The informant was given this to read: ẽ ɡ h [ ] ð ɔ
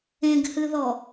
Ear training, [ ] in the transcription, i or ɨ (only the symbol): ɨ